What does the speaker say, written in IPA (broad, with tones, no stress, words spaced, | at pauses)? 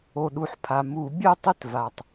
o˩ɗu˩ħpʰa˩ mu˧˩˧ bʲœ˥˧tˤɪ˥˧t va˩tˤ